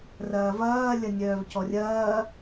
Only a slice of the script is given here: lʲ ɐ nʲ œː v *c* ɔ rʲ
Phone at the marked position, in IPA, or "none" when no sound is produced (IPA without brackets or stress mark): c